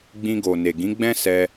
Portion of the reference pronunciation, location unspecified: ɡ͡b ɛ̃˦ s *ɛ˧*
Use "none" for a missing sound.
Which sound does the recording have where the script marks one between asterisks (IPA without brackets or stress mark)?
ɛ˧